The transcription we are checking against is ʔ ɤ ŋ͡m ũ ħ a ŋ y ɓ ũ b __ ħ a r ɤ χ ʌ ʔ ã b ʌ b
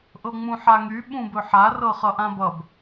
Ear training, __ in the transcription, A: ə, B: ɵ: B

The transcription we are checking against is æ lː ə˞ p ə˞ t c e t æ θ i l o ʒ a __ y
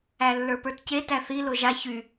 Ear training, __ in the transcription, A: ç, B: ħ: A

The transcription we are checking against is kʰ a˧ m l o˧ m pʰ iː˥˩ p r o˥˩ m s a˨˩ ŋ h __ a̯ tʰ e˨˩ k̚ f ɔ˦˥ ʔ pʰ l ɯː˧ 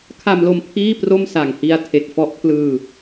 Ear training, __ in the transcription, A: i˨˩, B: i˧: B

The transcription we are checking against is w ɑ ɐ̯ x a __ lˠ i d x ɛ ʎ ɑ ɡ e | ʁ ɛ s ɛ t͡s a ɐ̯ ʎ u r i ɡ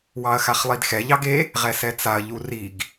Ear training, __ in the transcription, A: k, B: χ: B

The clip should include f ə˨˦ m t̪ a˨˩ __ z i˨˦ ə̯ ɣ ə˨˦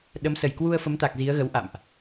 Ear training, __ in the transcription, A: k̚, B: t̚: A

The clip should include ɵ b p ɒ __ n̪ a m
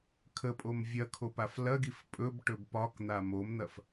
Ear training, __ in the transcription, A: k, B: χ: A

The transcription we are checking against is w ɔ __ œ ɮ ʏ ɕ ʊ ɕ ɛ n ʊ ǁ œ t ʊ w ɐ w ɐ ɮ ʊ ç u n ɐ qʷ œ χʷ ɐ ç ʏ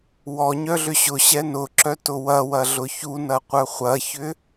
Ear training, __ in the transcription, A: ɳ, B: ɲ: B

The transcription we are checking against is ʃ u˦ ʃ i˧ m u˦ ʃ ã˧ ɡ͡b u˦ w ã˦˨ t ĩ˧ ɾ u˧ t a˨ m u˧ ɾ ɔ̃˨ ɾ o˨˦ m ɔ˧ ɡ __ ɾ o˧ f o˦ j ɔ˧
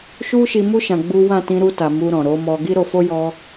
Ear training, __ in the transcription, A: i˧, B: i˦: B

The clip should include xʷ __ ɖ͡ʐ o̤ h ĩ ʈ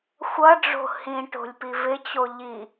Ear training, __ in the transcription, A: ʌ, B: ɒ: A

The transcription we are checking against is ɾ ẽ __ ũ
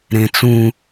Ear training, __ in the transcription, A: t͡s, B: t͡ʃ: A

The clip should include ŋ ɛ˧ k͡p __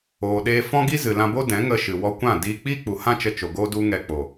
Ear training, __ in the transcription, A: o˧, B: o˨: B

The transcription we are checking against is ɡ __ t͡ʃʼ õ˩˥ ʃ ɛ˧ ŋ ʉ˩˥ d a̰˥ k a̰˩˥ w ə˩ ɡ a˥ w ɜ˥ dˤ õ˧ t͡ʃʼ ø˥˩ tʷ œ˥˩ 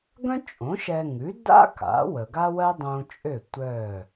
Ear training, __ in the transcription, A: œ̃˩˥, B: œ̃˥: B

